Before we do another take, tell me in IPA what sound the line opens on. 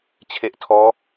t͡ɕʰ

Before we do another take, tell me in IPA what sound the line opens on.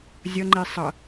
zʲ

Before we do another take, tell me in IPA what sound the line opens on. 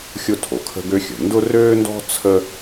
xʲ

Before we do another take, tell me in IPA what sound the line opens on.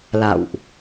l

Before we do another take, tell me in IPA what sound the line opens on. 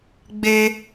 ɡ͡b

